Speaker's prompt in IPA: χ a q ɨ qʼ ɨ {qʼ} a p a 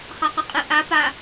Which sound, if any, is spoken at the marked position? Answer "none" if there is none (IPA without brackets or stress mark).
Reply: ʔ